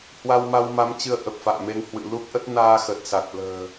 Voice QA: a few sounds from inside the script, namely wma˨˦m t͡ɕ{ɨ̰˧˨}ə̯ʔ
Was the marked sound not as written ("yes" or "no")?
yes